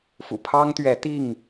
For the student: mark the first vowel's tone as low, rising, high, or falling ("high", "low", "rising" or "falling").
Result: low